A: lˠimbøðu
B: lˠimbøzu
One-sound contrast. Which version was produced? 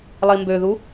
A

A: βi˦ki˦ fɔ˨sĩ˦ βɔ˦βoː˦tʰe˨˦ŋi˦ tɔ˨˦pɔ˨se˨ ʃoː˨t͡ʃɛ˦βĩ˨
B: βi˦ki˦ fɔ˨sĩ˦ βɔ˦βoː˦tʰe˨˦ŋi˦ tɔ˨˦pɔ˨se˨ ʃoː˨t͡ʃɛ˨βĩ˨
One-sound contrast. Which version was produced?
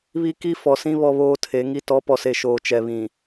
B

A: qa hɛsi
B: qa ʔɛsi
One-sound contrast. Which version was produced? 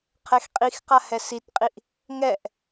A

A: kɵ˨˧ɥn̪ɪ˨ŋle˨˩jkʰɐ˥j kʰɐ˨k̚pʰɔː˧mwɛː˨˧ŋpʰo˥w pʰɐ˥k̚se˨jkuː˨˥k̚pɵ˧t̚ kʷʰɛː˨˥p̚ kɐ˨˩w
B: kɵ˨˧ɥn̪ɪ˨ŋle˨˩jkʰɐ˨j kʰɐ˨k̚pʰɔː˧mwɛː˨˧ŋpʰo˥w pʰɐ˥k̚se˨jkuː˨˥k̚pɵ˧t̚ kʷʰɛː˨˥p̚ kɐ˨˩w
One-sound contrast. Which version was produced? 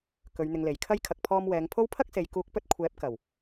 A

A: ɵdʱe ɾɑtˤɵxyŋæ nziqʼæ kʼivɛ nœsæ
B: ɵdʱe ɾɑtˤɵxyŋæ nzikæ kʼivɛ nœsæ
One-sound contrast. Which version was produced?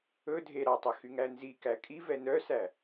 B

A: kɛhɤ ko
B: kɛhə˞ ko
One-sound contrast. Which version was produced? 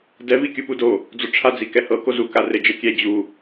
A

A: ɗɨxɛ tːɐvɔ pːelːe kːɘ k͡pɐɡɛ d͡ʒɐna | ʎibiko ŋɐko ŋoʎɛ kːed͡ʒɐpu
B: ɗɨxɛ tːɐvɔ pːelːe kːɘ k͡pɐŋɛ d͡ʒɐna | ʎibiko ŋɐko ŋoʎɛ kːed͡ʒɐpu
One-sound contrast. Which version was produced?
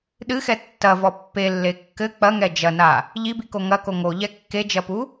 B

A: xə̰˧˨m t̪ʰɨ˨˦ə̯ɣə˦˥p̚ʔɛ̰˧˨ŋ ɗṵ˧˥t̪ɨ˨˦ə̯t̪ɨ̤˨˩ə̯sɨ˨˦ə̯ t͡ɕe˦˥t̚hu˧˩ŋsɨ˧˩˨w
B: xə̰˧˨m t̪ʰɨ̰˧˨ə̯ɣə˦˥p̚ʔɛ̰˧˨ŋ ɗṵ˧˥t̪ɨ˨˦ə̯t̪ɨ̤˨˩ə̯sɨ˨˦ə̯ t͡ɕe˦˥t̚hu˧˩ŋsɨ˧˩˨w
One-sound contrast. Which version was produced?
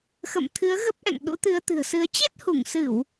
A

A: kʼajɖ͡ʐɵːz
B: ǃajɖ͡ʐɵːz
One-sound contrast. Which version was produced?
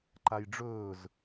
B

